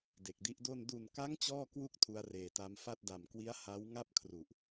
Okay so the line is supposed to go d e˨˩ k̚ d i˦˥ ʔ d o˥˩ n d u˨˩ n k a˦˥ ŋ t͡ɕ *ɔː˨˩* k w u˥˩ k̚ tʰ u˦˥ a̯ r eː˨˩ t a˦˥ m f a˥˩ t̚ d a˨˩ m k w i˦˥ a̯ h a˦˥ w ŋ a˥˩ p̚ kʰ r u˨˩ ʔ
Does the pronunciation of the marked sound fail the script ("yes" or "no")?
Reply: yes